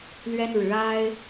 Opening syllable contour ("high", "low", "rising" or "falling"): high